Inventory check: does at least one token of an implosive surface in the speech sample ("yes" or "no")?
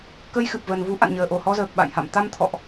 yes